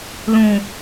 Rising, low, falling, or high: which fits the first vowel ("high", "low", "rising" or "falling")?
low